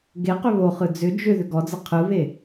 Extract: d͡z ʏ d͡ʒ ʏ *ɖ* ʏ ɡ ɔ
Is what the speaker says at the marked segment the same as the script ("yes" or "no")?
no